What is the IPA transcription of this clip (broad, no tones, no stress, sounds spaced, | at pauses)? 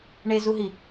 ɳ e z u ɦ i